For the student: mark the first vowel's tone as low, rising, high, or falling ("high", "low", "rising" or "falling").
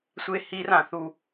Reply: high